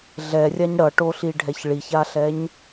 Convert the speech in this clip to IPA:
ɮ ɛ rʲ a ɲ ɽ ʌ ʈ o ɬ i ɖʱ ɛ ç ɭ i ç a ɬ ɛ ɲ

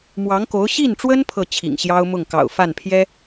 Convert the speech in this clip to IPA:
m w ɑ˧˥ ŋ k o˧˥ ʊ̯ ɕ i˥˩ n ʈ͡ʂ w ə˥ n pʰ ɤ˥˩ t͡ɕʰ ḭ˨˩ ŋ ɕ j ɑ˥ ʊ̯ m ʊ˥˩ ŋ k ɑ̰˨˩ ʊ̯ f a˥˩ n pʰ j ɛ˥

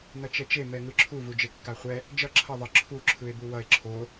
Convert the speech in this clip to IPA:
n ʌ t͡ʃ ɛ t͡ʃ e m ɛ ŋ ɯ ǁʰ u v u d͡ʒ e kː a χʷ ɛ | d͡ʒ ʌ ǁʰ ʌ ðˤ ʌ ǁʰ u ǁʰ ɯ e̯ b u w ʌ e̯ ǁʰ o

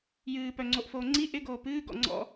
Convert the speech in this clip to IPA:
j ɨː p œ ŋ͡ǀ o ʔ f oː ŋ͡ǀ i ʔ ɪ ɡ oː p ɨː ɡ ɔ̰ ŋ͡ǀ ɔ̰

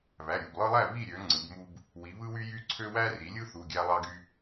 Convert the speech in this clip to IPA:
β æ˩˧˩ ɾʲ u˩˧˩ b lˠ ɯ˦ lˠ æ˥˨ β i˥˨ ɾʲ ø˩˧ ŋ͡ǀ ɯ˩˧ b m u˦ b | w i˩˧ β ɯ˦ w y˦ j y˦ ǀʰ ø˦ w æ˦ r i˩˧ lʲ ɯ˦ θ u˩˧˩ ɡʲ æ˦ lˠ ɑ˦ ɡ y˦

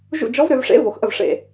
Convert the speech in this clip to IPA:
ʒ ṵ˦˨ d͡ʒ ɔ˧˥ v ɾ ø˩˧ v ʂ ḛ˧˥ v o˩˧ x ʔ ə˦˨ v ʂ ḛ˦˨

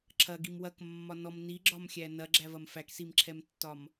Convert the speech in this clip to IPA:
ǁʰ ɐ ɡ i m w ɐ k mː ɒ n ɔ m n i ɡ͡ǁ ɒ m xʲ æ n ɐ ɡ͡ǁ æ v ɐ m f æ k s i m ǁʰ ɛ m tː ɒ m

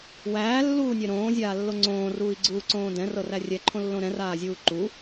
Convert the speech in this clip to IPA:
w æː lː uː nʲ ɛ ɾ õː zʲ aː lː o ŋ͡ǀ õː r uː i̯ ɡ͡ǀ uː ǀ õː d ɛ̃ r ɤ r æ rʲ ɛ ǃʰ õ lː õ ɾ ɛ̃ r aː zʲ uː ǃ u

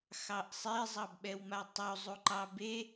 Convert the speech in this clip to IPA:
x ɑ ʔ sˤ e zˤ ɑ b ɓ ɛ w m a tˤ o zˤ u ǃ ɑ b e

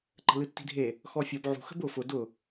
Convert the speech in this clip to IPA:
ǃ ə̤ l ɨ tː i̤ dʱ e | x ɔ fʲ ɔ b ʕ ṳ x ə̤ b ʊ f ʊ d ʊ

